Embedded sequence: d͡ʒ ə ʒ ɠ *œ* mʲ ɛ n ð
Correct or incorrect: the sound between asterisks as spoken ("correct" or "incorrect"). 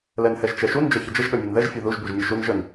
correct